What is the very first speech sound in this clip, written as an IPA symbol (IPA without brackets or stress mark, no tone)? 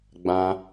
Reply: ɡ͡b